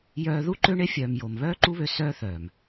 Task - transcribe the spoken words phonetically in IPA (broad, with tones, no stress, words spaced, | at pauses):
jœː˧ ðu˦ǃø˦ɳe˦ fʲœː˨m jo˨m βœː˦ ǃu˦βø˧ sœː˦θœː˨m